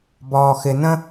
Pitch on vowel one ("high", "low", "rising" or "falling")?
low